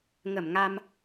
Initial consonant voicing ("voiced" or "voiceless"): voiced